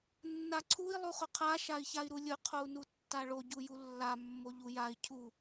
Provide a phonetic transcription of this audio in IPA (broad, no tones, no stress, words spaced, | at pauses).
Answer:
nːaǀʰui̯ lˠuχʊqʰa ʃai̯çai̯ɾulʲʊ qʰou̯nutːaɭo ɟujulːa mːoʎujai̯ cʰu